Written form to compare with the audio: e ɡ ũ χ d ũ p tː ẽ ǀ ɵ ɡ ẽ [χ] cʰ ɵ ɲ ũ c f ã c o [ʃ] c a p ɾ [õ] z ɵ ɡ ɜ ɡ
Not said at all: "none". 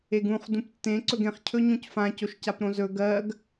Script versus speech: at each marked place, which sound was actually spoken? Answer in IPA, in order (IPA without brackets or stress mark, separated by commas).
χ, ʃ, õ